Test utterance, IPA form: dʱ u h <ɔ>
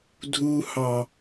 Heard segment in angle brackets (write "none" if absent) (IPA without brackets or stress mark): ɑ